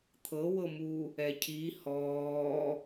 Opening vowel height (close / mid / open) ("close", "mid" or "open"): mid